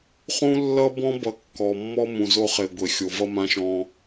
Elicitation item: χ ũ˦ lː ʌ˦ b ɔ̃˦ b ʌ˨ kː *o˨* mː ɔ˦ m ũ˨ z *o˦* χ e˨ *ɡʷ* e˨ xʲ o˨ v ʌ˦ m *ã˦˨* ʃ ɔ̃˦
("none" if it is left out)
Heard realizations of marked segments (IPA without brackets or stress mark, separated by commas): ɔ˨, o˦, ɡʷ, ã˦